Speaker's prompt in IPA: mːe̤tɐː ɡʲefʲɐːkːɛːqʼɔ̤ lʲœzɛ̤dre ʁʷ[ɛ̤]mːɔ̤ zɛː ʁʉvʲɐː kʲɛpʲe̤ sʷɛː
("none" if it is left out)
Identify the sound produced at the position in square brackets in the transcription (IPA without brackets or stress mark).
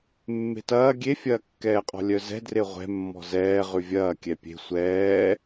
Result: ɛ̤